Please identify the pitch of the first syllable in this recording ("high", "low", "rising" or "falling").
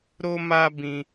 high